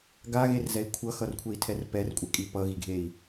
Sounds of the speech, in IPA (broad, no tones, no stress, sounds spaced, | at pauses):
ɡ a ɣ e r z ɛ i̯ kʷʰ ʌ x ʌ r kʷʰ e i̯ tʰ ɛ r p ɛ r kʷʼ ɛ kʼ i p ʌ ɣ i ɡʱ e i̯